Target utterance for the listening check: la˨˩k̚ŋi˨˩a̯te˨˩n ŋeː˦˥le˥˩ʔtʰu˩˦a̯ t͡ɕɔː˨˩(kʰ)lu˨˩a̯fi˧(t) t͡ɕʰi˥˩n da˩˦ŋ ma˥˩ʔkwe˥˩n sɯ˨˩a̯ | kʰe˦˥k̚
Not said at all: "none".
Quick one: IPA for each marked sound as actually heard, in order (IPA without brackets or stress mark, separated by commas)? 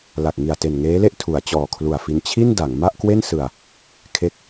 kʰ, n